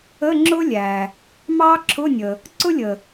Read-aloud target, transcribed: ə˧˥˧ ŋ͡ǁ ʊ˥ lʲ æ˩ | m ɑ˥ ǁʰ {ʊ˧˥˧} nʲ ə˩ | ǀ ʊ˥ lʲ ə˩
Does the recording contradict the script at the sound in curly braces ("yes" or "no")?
no